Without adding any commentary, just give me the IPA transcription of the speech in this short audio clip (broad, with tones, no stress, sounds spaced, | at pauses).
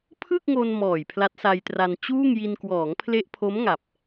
pʰ ɯ˥˩ k̚ ŋ o˧ n m ɔː˨˩ j pʰ l a˦˥ t̚ s a˧ j t r a˧ n t͡ɕ uː˥˩ ŋ j i˧ n k w ɔː˩˦ ŋ pʰ l e˦˥ ʔ pʰ o˦˥ m ŋ a˨˩ p̚